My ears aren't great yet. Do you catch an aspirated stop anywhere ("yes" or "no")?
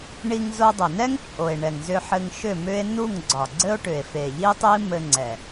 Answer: no